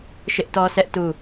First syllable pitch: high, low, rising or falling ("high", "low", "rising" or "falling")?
high